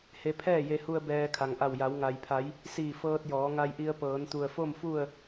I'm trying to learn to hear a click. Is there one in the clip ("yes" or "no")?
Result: no